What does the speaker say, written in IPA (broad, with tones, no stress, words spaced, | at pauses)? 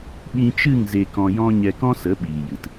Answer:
ɓĩ˧t͡ʃɨ˦˨ŋ ze˧kɔ̃˧jɔ̃˦ ɲɛ˧kɔ̃˦sə˨˦ ɓiː˨jɨ˨t